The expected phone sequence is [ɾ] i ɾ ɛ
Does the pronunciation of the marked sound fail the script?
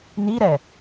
yes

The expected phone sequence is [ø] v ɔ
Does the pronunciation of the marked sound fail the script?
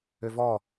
no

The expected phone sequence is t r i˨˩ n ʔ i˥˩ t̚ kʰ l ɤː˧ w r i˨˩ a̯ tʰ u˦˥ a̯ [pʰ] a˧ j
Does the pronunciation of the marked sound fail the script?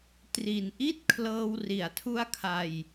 yes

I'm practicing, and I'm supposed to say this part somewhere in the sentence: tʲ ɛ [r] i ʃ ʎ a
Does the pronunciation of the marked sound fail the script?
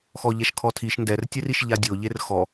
no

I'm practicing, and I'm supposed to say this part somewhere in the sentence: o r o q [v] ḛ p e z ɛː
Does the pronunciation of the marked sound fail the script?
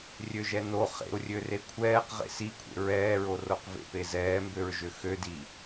no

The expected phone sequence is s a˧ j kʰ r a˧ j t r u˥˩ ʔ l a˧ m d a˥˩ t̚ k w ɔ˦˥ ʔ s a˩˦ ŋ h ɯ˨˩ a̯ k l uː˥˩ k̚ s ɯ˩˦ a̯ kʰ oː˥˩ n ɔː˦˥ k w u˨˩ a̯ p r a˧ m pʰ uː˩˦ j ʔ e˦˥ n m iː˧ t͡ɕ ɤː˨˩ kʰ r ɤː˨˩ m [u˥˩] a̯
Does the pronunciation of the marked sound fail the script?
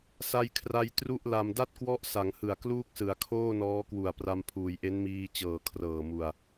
yes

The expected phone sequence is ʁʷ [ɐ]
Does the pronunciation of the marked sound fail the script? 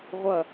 no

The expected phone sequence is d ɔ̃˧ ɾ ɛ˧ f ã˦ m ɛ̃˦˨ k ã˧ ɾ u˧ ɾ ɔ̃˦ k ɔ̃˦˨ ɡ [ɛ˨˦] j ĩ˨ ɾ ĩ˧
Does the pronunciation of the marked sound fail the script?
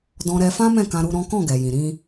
yes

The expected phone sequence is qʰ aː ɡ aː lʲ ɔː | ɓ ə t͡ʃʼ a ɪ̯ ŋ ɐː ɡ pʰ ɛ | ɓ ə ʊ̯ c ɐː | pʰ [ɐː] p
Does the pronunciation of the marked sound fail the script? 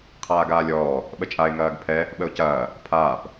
yes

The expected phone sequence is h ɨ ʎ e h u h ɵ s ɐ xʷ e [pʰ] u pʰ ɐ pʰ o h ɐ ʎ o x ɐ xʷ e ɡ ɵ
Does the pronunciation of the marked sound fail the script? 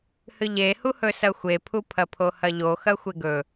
no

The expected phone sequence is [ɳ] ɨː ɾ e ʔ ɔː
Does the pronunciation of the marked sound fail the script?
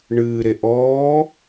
no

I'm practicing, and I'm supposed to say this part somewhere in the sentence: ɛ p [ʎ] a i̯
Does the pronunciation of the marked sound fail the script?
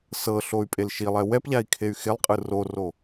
no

